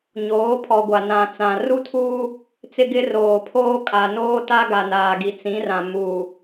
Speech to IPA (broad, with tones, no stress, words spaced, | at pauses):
ɲoː˨˦pʰɔ˨ɡʷa˨ nã˨t͡sã˨ ru˦tʰuː˦ | t͡sɪ˦ɡɪ˦ roː˨pʰoː˦kʼa˨ noː˦ta˦ ɡa˨naː˨ɡi˨ t͡sĩ˨˦rã˨muː˨